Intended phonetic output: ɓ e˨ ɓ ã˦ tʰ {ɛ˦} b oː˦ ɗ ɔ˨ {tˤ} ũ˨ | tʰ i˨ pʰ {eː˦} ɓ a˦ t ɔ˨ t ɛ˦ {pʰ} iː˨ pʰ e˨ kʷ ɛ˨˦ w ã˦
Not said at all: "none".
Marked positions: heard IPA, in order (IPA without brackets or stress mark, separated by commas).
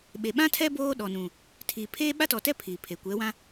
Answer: ɛ˦, n, eː˦, pʰ